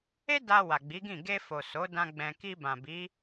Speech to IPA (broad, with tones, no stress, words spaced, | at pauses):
e˦ da˧ wa˨ɡ͡bi˨˦ɡĩ˦˨ ɡe˧fo˨ so˨˦dã˧ ɡ͡bɛ̃˧ ki˧bã˨ bi˨˦